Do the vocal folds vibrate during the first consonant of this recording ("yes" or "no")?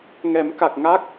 yes